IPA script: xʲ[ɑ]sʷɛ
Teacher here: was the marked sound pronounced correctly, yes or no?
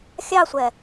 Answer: yes